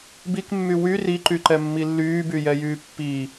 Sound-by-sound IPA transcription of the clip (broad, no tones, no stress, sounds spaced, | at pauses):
b i k mː y w y r i ǃ y ǃ ɛ mː i lː yː b y j ɛ j yː pː iː